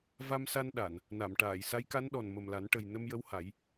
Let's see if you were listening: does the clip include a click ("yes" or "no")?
no